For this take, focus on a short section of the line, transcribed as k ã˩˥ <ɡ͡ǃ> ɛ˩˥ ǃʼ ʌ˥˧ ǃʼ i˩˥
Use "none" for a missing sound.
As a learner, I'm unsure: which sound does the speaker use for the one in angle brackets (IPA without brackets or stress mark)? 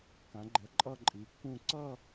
ɡ͡ǃ